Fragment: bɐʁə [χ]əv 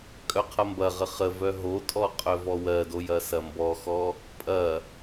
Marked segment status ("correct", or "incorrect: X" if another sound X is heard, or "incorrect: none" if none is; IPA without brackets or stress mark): correct